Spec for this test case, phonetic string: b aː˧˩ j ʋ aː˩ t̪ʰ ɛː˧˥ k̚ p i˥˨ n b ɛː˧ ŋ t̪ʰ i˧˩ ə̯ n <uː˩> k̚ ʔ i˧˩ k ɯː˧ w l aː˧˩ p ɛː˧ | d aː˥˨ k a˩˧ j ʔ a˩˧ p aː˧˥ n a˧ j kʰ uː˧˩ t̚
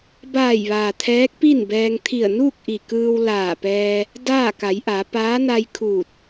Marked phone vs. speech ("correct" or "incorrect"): incorrect